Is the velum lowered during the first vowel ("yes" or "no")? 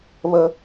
no